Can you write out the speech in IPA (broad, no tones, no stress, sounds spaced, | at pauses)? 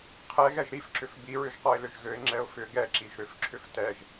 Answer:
qʰ ɛ ɣ ɛ ʒ ɾ i f ǁ ʏ f b i ɹ ʏ ʒ q ɔ ɪ̯ l ʏ ʒ ɣ ø ɪ̯ ŋ͡ǁ ɛ ʊ̯ f ʏ ɡ ɛ ǁ i ʒ ɾ ʏ f ǁʰ ʏ f t ɛ ʒ